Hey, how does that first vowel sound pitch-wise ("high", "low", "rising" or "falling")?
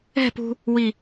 falling